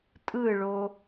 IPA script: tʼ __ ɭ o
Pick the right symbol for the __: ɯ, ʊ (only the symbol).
ɯ